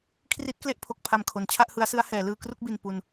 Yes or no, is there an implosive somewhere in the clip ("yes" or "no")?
no